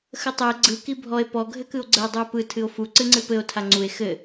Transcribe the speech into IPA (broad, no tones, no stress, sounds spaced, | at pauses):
x ə tˤ ɘ e̯ ɡ͡ǀ ɯ k i bʱ ɔ e̯ p ɔ ɡʱ ɘ k ɯ o̯ ɡ͡ǀ ə o̯ dˤ u e̯ p ɯ tʰ ɨ o̯ f u ǀ ɨ ŋ͡ǀ ɨ p ɘ o̯ tʰ a ŋ͡ǀ u e̯ x ɘ